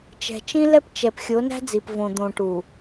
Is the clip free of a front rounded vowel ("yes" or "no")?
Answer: yes